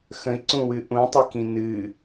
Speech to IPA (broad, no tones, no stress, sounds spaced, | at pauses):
x ə̃ i̯ ǀ ũ w ɨ ʔ ũ tˤ i k ĩ n ɨ